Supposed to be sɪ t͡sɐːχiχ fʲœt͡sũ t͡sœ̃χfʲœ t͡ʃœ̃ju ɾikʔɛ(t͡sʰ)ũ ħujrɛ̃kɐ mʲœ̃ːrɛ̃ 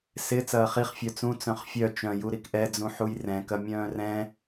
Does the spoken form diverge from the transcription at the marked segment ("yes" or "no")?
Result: yes